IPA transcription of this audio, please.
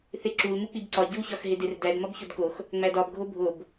θ e ǁ u l m u k͡p i b ǀ ɒ ɟ u ç ɒ x ɦ e d e r d æ d m ɒ b ç o d k o x | ŋ͡m æ d ɒ b ɡʱ o bʱ o b

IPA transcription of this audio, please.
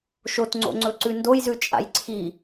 ʃ o t ŋ͡ǀ o̰ ŋ͡ǀ ɵ ǀ ʉ n d o j z ʉ t͡ʃʼ a̰ j ǀʰ i

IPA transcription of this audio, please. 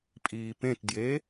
pʼ iː p ẽ t d j e

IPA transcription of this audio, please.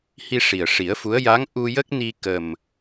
h i˧ ʂ i˨˩ ə̯ ʂ i˨˩˦ ə̯ f u˧˥ ə̯ j a˧˥ ŋ ʔ u˧ j ə˦˥ k̚ n i˧ k ə˨˩ m

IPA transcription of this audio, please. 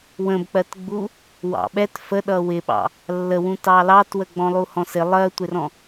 w ə̃ b k͡p ɜ t ɡ͡b u | w ɑ̰ ɓ ɛ t f ə ɗ ʌ w ɪ ɓ ɑ̰ | lː ə w ũ t ɑ l ɑ t w ə ɡ͡b ɔ̃ lˠ u h ɔ̃ s ɪ lˠ ɜ tʷ ɪ r ɔ̃

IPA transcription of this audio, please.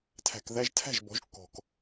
tʰ æ̤˩ k ð æ˧ ʒ tʰ æ̤˥˩ ʒ b ɔ̤˩˥ ʒ kː ɔ̤˩ k

